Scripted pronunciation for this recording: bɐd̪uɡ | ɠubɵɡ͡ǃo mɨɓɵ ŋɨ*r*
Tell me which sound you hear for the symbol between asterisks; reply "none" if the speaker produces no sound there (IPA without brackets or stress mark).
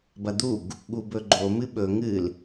l